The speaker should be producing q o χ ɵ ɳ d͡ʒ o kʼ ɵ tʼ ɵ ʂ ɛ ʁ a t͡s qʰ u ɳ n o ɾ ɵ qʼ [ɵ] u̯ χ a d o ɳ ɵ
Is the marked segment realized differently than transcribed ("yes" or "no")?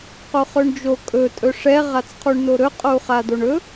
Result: yes